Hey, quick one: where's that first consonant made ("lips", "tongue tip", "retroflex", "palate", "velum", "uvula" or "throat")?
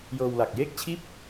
palate